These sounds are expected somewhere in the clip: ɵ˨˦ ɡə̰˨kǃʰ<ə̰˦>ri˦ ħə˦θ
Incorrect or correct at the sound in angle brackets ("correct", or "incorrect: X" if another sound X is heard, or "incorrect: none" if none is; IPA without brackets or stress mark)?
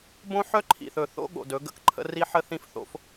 correct